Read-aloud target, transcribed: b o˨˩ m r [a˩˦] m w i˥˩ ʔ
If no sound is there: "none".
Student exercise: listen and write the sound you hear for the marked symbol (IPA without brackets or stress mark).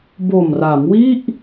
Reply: a˩˦